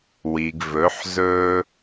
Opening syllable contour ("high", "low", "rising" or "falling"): low